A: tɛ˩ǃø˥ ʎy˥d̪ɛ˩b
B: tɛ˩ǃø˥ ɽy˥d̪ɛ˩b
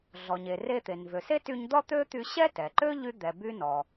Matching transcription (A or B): A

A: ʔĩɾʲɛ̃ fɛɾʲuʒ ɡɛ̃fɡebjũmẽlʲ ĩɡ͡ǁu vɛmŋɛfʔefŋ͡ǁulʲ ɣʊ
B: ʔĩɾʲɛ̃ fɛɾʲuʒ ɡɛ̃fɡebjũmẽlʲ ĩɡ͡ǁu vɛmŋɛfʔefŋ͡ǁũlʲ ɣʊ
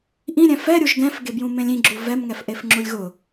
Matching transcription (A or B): A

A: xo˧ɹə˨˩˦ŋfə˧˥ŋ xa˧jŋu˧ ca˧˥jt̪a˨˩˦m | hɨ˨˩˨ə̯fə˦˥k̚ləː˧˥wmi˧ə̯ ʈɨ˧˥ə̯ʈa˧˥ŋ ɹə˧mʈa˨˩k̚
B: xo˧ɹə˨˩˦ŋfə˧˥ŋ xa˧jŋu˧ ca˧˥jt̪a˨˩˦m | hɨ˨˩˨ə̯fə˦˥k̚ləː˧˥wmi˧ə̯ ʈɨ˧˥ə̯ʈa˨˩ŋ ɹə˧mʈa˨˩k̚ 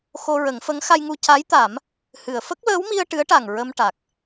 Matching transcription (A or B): B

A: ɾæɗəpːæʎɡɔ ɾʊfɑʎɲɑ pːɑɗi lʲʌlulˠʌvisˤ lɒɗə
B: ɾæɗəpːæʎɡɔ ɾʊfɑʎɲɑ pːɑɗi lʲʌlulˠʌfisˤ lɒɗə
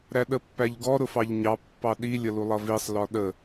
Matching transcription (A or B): A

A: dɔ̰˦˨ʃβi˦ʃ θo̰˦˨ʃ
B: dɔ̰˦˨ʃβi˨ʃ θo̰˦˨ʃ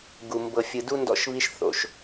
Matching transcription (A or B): A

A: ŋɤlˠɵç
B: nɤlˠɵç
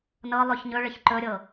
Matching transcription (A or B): B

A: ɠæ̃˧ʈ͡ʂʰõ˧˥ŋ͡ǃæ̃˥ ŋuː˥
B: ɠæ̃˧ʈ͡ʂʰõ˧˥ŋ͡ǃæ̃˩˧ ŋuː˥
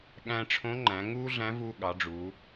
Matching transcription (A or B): B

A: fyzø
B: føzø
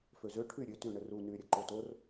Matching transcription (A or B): B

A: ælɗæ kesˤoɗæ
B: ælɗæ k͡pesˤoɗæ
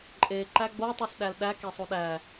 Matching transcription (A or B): A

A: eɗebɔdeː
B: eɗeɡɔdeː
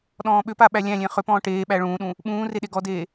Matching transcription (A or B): B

